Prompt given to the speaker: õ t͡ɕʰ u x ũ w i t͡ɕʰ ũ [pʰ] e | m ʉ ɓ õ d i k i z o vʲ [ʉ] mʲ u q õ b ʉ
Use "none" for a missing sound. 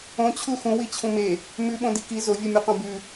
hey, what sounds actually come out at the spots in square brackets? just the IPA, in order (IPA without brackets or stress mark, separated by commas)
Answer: m, ʉ